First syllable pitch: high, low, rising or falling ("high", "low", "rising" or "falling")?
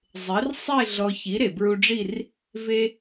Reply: rising